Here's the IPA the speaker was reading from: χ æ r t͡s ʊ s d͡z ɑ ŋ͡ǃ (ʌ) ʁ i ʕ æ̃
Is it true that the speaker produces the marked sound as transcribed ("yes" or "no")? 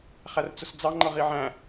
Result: yes